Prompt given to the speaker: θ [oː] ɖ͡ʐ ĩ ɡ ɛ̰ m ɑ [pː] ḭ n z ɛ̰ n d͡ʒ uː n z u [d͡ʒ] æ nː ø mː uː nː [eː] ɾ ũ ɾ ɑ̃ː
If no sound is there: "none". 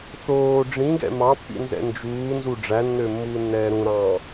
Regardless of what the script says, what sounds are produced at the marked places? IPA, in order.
oː, pː, ɖ͡ʐ, ɛː

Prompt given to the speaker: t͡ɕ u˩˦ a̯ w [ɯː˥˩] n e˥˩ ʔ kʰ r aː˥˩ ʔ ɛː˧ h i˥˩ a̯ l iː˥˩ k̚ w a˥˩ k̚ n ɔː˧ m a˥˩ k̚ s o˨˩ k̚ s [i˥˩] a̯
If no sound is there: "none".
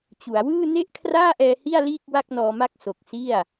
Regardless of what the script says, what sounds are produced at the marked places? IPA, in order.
ɯː˥˩, i˥˩

